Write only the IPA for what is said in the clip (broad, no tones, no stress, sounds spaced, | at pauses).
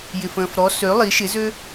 j ɪ f ə̃ː f ɾ ɔ s ø lˠ i ʃ ɪ z ø